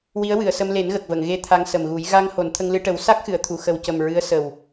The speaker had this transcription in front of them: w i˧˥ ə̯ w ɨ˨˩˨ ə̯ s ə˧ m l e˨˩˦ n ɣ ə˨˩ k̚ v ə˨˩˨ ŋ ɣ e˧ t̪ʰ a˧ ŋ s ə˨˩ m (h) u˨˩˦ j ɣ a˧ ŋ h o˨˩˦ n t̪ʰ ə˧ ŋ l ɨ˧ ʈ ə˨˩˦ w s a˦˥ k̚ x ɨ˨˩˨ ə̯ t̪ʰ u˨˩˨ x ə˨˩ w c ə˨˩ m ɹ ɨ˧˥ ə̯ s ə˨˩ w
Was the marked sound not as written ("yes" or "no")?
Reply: yes